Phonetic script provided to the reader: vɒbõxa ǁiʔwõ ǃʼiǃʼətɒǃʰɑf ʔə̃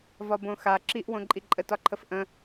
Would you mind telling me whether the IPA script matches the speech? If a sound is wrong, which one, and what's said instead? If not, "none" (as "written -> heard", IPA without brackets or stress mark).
ɑ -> ə